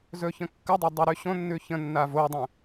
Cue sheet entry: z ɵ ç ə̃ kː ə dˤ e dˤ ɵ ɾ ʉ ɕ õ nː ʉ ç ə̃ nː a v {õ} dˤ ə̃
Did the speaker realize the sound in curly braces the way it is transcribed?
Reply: no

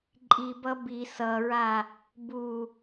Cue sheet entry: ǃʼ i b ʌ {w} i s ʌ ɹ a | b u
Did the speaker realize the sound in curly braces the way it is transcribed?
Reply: no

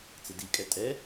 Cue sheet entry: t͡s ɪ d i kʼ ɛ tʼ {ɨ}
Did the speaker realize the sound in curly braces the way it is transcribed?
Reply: no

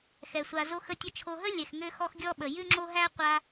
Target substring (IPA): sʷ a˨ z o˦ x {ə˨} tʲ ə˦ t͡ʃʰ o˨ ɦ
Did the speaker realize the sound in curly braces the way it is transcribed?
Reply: no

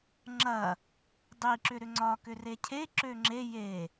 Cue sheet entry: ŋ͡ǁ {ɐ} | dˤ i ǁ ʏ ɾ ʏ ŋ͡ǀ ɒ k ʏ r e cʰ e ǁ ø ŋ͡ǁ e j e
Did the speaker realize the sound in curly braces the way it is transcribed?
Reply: yes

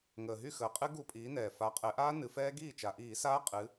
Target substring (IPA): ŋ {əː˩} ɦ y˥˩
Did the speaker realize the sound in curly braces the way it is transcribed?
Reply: yes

